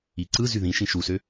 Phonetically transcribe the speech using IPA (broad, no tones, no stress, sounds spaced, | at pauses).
i ǀ ɯ z y ð ĩ ʃ ĩ ʃ u s ø